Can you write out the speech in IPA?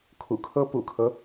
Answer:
kʰ ṵ˨˩ kʰ ɤ˥ p ṵ˨˩ kʰ ɤ˦

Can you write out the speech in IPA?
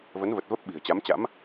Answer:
v ə˨˦ n v ə˨˩ t̚ v ə˦˥ p̚ ɓ i̤˨˩ ə̯ t͡ɕ a˨˦ m t͡ɕ a̰˧˥ m

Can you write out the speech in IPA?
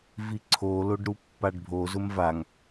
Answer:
v i ǀʰ o l o ɖ ɾ u pː a ɖ bʱ o z ʊ m v a ŋ

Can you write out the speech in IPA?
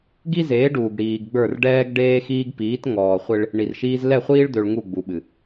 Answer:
ɡ i˦ z eː˨˦ ɖ uː˨ ɡ ɽ iː˨ ɡ ɡ͡b ə˞˦˨ r ɖ ɛː˦ ɡ ɖ eː˦ x iː˦ ɡ p iː˨˦ t ŋ ɔː˨ χʷ e˦ ɭ | ɳ i˨ r ʃ iː˦ z l ɛ˦˨ χʷ iː˦ ɭ d̪ ø˨ ɭ ŋ u˦˨ ɡ͡b u˨ ɓ ɨ˨

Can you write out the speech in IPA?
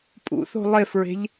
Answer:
pʼ ṵ θ o̤ lˠ e f ɹ e̤ ʎ

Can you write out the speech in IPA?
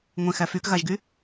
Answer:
ŋʷ ẽ x æ f y k ɣ a ʒ ɡ y

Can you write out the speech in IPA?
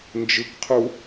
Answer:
n d͡ʒ ɯ k qʰ u

